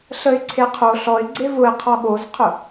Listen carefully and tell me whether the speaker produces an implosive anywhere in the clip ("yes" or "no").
yes